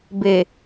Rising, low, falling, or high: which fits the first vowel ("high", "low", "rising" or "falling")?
low